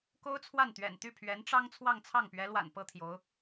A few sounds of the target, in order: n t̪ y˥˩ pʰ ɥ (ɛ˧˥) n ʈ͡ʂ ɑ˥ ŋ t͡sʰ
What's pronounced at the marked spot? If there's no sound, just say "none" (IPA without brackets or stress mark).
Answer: ɛ˧˥